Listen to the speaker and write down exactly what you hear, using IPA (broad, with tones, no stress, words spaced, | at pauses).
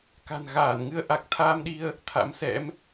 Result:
ka̤˨˩nɣaː˧˩n ŋɨ˧ə̯ʔa˨˩k̚ t̪ʰaː˧mɗi˧ə̯ | t̪ʰa̰˧˥msɛ̰˧˥m